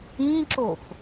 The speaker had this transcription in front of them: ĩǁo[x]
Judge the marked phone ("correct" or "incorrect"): correct